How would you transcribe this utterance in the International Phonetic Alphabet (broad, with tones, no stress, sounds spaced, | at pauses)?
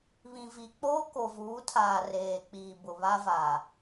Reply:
β ĩ˨ v i˨ k͡p oː˦ k o˨ v uː˨˦ tʰ aː˨ r eː˨ k͡p iː˨ b ʊ˨ β a˦ v aː˨